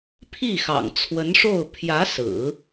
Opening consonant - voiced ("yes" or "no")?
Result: no